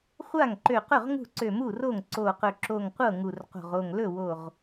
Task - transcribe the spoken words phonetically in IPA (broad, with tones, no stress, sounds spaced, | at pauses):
χʷ a˥˩ ŋ ǃ ø˧˩ q ɵ˥˩ ʁ ŋ ṳ˥˩ ǀ ø˧˩ m u˥˩ r o˥˩ ŋ ǀ o˧˩ q ɵ˧˩ ǁ o˧˩ ŋ qʷ ɤ˥˩ ŋ u˧˩ r q o̤˧˩ ʁ o˧˩ ŋ l ɵ˥˩ w o˧˩ ʁ